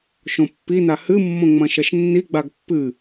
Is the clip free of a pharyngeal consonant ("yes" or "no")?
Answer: yes